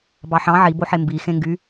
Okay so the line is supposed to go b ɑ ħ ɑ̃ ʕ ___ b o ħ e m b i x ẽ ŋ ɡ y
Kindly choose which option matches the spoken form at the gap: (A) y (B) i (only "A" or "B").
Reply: B